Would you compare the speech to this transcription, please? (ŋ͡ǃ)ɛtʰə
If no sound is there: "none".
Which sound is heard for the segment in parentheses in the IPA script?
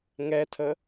ŋ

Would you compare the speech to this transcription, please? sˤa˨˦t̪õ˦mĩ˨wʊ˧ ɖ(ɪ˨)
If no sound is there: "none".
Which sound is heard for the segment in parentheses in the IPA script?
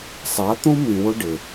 ɪ˨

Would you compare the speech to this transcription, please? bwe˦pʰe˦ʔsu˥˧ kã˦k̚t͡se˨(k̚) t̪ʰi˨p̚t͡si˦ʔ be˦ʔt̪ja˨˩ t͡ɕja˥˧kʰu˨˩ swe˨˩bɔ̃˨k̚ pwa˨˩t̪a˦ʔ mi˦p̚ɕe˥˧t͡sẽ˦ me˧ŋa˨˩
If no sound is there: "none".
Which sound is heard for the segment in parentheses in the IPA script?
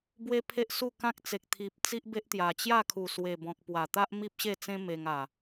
k̚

